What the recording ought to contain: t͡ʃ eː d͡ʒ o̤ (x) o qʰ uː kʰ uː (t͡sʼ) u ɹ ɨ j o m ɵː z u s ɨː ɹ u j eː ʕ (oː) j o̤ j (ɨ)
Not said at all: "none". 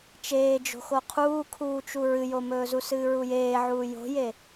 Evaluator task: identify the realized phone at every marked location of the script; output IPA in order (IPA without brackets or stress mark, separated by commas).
x, t͡ʃ, uː, e